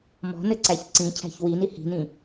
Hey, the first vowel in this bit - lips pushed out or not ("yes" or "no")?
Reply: yes